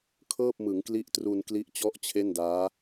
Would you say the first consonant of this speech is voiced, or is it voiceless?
voiceless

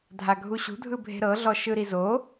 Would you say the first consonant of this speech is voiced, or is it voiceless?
voiced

